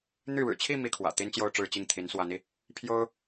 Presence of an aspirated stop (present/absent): present